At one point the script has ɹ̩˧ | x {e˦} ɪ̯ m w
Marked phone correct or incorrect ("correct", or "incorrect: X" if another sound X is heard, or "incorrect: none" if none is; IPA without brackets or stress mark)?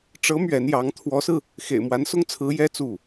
incorrect: ḛ˨˩